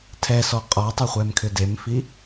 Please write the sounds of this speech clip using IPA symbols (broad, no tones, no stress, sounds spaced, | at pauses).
tʰ ɛ s ɔ qʼ ɔ tˤ ʏ χʷ ɛ m kʰ ʏ d e m f i